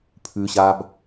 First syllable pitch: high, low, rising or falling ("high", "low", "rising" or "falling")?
low